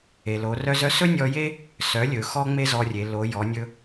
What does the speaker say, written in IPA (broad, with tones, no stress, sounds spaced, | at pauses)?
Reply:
e˩ l o˩˧ r œ˧ z œ˧˥ s ɵ˥ nʲ ɔ˧ j e˥ | s œ˩˧ lʲ ɵ˩ x ɔ˥ ŋ͡m e˥ z ɔ˧ rʲ e˩˧ l o˩˧ j ɔ˩˧ nʲ ɵ˧